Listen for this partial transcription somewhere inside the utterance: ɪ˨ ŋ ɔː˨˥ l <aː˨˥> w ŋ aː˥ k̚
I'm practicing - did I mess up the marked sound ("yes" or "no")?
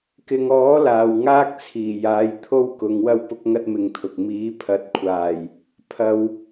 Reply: yes